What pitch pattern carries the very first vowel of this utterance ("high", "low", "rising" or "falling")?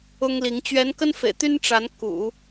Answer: high